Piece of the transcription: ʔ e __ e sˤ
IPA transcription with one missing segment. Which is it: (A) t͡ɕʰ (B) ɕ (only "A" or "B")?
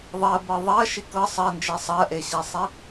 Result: B